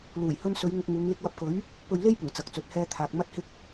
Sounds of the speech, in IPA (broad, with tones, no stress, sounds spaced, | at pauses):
l uː˨˩ j h ɵ˧ n s ɵ˨˧ ɥ ŋ ʊ˧ k̚ ŋ uː˨˧ ŋ l ɪ˧ k̚ w ɐ˧ p̚ k ɵ˨˥ ɥ | p ɵ˧ ɥ l e˥ j p ʊ˨˩ ŋ t͡s ɐ˨ k̚ t͡s ɵ˨ t̚ h ɛː˧ t̪ʰ aː˨ k̚ m ɐ˧ t̚ h ɪ˧ k̚